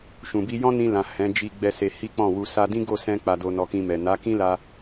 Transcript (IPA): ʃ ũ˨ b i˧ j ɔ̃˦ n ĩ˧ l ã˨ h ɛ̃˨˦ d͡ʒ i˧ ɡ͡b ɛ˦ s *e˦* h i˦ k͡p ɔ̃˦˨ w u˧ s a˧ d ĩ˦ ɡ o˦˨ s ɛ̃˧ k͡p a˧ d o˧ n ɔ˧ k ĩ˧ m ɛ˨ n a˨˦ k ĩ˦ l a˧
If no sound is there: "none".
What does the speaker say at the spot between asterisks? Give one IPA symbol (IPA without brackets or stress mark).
e˧